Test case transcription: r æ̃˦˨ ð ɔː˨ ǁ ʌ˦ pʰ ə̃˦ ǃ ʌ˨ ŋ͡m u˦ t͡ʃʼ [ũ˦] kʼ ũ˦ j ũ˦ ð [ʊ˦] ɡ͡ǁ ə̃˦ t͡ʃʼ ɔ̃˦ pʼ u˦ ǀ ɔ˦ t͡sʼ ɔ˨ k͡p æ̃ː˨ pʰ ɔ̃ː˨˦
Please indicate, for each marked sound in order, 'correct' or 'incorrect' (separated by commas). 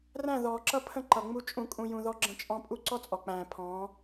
correct, incorrect